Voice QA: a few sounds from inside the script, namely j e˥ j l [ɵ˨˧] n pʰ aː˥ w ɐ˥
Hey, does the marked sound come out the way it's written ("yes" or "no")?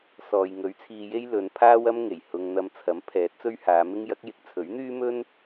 yes